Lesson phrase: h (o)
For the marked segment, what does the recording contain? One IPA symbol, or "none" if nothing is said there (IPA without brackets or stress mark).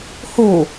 o